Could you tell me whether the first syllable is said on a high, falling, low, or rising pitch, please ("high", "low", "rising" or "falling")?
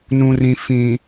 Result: low